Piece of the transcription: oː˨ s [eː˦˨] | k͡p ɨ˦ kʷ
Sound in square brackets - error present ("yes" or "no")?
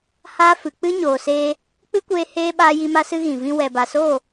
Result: yes